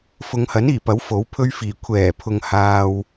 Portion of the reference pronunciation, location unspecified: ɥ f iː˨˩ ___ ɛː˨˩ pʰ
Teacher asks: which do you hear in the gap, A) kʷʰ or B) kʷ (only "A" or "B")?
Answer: A